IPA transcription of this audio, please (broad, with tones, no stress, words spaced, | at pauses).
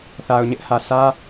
θa˨ʊ̯ɲɪ˦ʔhä˨ sä˦